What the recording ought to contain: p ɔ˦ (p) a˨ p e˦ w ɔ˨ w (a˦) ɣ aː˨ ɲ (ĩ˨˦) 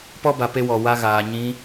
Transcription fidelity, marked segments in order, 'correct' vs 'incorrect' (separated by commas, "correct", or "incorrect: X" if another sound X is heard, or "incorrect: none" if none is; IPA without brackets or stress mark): incorrect: b, correct, correct